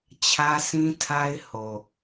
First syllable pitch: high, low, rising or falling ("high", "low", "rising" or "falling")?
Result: high